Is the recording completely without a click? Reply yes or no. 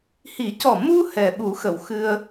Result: yes